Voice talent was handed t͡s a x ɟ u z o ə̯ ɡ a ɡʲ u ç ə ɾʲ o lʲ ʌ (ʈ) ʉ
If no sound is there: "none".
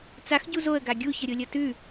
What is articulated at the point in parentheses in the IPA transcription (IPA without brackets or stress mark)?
t